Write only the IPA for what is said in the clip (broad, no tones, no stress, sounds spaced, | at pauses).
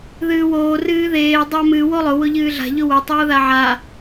ð ɨː w oː r ɨː ð eː dˤ a m ɨ w o lˠ ʊ w ʊ ʎ ɨː ɮ a̤ ʎ ʊ w o tˤ oː ð a ʕ a